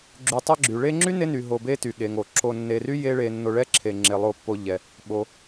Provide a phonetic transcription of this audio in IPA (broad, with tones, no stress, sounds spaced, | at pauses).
ɡ͡ǁ y˨ tˤ ɛ˦ ɡ͡ǁ y˩ ɭ e˦ ŋ͡ǁ y˥ n e˦ n y˩ ɦ o˨ b e˥ t y˩ ɠ e˩ ŋ o˩ ǁ o˨ nː e˨ r y˥ j e˦ ɭ e˨ nː o˨ ɭ ɛ˦ ǁʰ e˩ ŋ͡ǁ e˩ lˠ o˨ pː o˨ ʎ ɛ˩ | ɓ o˩